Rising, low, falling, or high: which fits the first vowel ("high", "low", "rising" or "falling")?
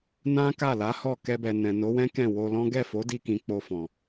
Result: high